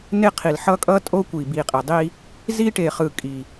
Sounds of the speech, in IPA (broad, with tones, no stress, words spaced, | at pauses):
ne˦qʰi˨lħʌ˦kʼʌ˦ tʼo˦kʷi˨ bi˨qʼe˨dˤi˦ | zi˦ʈe˨χɯ˨ kʼi˨